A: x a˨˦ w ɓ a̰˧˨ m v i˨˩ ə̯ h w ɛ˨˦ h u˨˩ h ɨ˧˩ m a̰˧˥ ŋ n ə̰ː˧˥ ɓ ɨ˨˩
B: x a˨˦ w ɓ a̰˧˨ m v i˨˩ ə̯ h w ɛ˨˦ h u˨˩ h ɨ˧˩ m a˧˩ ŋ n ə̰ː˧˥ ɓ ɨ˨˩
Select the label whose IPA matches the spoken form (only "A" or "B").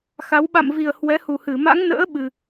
A